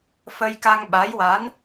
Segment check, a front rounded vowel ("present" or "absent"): absent